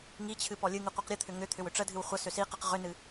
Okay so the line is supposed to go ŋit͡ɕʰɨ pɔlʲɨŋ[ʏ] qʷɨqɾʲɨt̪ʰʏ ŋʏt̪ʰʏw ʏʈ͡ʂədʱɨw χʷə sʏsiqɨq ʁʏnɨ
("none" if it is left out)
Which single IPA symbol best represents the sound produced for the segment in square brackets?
ɨ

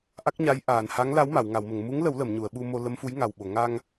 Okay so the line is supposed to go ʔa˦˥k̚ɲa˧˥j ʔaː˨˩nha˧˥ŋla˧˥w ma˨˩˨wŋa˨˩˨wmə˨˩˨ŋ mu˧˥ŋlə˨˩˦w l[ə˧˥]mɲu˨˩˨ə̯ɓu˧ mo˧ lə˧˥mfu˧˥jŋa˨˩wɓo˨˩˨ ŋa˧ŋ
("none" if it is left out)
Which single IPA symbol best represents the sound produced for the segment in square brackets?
ə˨˩˨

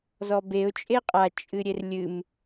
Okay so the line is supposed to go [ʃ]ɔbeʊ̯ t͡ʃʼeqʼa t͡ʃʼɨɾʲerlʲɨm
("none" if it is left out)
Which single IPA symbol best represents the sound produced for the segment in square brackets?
z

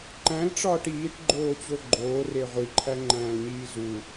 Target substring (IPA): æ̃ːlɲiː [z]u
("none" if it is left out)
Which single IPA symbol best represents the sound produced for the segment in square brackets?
z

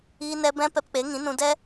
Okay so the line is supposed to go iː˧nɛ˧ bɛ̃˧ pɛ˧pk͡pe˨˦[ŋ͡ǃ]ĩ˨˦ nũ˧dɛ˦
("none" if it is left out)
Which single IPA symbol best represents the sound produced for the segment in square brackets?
ŋ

